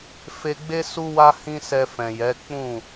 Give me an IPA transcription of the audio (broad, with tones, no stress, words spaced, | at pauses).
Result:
fe˨ɡ͡be˧ su˧wa˧ hĩ˦sɛ˧fɛ̃˨jɛ˨˦ k͡pũ˦˨